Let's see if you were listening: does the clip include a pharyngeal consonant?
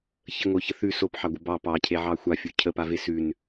yes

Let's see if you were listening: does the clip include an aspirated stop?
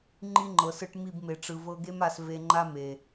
no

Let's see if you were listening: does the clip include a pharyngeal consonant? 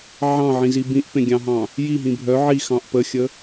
yes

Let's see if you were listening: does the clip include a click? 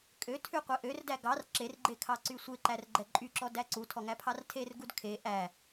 yes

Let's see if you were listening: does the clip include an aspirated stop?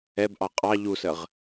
no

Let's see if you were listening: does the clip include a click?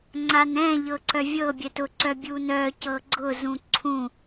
yes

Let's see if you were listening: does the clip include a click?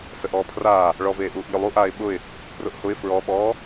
no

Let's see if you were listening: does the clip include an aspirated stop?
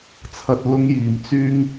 yes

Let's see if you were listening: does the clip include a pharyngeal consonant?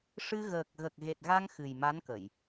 no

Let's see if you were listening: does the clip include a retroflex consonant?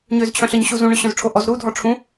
yes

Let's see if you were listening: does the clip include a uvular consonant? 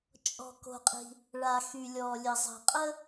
yes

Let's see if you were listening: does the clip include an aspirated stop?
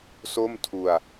yes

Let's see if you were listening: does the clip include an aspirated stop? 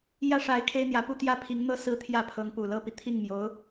yes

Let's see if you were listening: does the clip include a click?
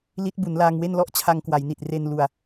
no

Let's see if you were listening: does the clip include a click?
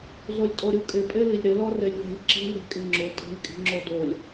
yes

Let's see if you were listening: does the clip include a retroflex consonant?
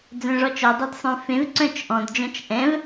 yes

